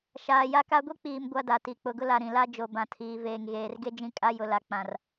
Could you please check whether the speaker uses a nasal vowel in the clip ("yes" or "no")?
yes